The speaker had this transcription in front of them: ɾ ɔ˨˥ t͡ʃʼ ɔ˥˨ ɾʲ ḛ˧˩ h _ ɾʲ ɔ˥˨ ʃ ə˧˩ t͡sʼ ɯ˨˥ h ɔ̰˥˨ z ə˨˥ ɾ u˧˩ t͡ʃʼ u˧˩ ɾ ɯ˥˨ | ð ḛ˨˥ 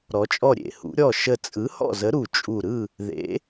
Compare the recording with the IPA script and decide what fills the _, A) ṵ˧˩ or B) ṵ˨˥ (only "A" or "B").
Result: B